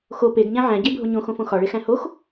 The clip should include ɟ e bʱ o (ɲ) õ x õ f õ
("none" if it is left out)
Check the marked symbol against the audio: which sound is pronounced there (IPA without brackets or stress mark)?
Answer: ɲ